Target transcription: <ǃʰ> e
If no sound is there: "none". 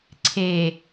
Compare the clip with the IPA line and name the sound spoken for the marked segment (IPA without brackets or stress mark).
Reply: ǀʰ